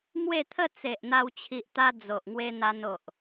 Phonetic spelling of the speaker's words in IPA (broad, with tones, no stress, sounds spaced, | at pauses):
m w e˥˧ t̪ʰ ə˥˧ t͡s e˨ ʔ n̪ a˧ w t͡ɕʰ i˨ ʔ t̪ a˧ d͡z o˨ ʔ ŋ w e˧ n̪ a˧ n o˨ ʔ